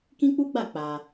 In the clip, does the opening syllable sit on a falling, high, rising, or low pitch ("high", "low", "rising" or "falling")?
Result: high